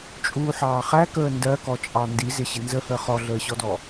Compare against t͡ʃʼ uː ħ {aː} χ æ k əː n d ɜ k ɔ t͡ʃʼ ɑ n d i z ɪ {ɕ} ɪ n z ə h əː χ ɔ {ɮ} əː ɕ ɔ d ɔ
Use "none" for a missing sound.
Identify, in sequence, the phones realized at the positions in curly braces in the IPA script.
ɑː, ɕ, ɮ

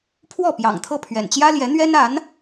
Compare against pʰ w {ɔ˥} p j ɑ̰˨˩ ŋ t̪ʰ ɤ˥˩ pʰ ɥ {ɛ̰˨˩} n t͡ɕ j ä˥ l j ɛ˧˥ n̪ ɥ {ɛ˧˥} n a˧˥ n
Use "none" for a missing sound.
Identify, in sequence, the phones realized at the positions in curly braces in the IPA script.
ɔ˥˩, ɛ̰˨˩, ɛ˥

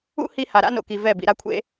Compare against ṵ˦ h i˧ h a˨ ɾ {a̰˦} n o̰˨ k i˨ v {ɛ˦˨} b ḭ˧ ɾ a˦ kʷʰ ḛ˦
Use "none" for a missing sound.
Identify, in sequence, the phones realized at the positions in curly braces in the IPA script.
a̰˦, ɛ˦˨

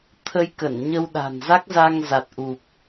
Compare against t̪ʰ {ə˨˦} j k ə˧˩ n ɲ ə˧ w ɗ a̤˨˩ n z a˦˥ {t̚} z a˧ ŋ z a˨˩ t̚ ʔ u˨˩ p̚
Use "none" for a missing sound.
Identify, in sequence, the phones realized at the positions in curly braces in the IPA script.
ə˧, k̚

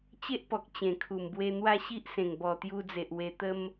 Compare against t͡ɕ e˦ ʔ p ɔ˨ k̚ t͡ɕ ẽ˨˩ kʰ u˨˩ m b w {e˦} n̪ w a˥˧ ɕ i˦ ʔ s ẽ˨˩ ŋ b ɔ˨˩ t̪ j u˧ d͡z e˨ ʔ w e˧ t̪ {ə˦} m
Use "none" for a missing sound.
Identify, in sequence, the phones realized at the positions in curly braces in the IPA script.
e˧, ə˦

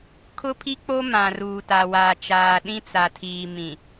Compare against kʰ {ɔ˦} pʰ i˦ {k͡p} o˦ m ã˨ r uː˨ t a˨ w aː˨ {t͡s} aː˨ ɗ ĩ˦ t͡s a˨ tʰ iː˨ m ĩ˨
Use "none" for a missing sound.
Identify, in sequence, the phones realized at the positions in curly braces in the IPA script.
ʊ˦, k͡p, t͡ʃ

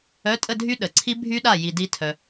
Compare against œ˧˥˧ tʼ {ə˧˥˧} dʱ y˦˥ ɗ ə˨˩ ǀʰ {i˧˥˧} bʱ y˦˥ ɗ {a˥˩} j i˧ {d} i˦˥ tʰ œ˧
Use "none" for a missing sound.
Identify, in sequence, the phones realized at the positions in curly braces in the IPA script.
ə˥˧, i˦˥, a˥˩, d

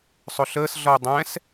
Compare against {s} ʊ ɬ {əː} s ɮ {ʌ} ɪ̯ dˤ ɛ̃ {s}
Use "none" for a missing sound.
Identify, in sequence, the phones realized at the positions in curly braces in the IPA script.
sˤ, əː, ʌ, s

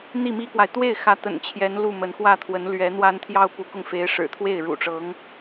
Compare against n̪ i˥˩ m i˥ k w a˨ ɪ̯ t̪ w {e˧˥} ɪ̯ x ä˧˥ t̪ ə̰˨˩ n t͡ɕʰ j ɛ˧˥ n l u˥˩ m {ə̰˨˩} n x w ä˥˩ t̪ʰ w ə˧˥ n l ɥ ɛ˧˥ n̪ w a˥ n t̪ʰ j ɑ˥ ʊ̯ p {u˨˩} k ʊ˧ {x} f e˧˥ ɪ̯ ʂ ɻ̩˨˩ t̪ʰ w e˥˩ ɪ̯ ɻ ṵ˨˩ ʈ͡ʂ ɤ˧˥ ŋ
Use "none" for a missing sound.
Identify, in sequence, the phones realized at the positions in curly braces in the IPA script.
e˥˩, ə˧˥, u˧˥, ŋ

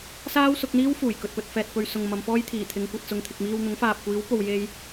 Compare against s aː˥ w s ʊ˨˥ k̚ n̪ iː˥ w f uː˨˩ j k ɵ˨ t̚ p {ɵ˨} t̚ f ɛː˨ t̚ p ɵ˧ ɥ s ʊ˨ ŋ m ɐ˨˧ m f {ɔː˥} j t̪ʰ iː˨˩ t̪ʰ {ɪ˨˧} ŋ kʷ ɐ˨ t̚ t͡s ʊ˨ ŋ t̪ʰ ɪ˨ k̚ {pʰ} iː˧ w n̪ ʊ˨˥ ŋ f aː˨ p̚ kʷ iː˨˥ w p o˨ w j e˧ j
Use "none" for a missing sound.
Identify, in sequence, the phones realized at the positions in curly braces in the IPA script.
ɵ˨, ɔː˥, ɪ˨˧, m

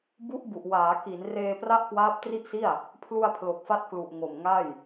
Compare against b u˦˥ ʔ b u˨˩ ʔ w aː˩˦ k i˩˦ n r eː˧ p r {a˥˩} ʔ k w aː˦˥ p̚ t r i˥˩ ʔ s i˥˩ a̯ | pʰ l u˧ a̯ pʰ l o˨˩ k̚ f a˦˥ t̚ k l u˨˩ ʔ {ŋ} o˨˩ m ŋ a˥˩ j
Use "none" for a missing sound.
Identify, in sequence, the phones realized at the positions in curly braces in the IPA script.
a˥˩, ŋ

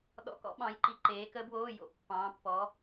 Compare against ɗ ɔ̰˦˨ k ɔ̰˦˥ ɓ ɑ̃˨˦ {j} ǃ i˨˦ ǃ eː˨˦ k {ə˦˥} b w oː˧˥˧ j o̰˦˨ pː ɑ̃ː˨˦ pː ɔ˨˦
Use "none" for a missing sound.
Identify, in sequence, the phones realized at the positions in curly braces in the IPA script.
j, ə˦˥

